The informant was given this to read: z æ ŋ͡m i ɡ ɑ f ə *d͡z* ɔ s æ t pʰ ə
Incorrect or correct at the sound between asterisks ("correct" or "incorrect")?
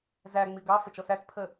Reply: incorrect